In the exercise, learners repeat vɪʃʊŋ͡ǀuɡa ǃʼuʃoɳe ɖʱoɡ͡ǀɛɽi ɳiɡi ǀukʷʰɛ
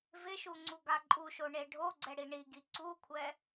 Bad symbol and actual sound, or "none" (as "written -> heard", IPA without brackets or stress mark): ʊ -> u